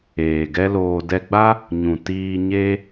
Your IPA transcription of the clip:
eː˨ ɡ ɛ˦ l oː˧ d ɛ˧ ɡ͡b a˦ | ɲ ũ˨ t iː˧ ɲ e˦

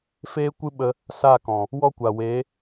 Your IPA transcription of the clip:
f eː˦ kʷ ɨ˦ ɓ ə˧ | s a˦˨ k ɔ̃˨ | w ɔ˦ kʷ a˨ w eː˨˦

